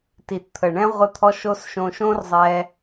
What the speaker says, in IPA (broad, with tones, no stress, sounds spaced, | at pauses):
t i˩ t t̪ʰ ə˩ ɳ ɛ̃˧ ʁʷ ə˧ t̪ʰ ɔ˧ ʃ o˧ s ʃ õ˧ ʃ õ˥ r zˤ ɛ˧